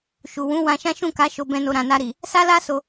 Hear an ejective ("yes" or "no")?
no